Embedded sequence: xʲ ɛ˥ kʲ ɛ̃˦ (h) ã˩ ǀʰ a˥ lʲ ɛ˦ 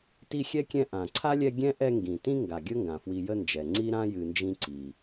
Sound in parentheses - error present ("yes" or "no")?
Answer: yes